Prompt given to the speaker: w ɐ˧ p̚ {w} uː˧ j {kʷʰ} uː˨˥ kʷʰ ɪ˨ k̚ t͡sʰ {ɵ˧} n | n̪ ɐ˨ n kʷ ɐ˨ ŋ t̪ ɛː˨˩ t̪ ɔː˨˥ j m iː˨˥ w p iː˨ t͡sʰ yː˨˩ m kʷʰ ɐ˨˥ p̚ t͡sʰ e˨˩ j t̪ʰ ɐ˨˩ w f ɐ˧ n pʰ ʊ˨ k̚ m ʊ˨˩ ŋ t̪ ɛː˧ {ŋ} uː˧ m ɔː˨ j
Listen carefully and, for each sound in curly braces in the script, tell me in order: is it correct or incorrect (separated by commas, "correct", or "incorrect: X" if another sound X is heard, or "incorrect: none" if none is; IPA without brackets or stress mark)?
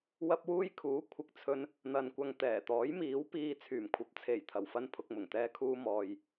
correct, incorrect: kʰ, correct, incorrect: kʰ